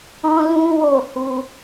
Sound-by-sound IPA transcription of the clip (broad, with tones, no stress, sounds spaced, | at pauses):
ɔ̃˦ l ũ˦ w o˦˨ h u˧